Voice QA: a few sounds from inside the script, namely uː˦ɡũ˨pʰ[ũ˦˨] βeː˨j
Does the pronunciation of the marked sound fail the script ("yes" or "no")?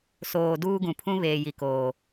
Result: yes